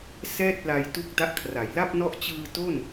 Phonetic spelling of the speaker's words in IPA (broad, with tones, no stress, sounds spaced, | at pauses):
s ɛː˥˩ t̚ l a˧ j t u˦˥ k̚ d a˦˥ ʔ kʰ r a˩˦ j l a˥˩ p̚ n ɔ˦˥ ʔ t͡ɕ ɯː˧ t o˥˩ n